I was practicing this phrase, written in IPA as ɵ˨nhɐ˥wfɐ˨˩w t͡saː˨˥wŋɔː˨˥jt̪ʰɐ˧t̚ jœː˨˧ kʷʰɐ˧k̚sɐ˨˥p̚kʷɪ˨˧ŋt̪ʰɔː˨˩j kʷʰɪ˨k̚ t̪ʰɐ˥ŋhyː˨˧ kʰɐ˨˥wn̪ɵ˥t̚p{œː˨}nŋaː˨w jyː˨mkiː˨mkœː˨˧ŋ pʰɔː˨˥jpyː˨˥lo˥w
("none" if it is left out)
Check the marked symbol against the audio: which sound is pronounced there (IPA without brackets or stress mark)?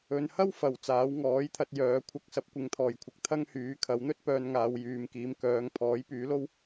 œː˧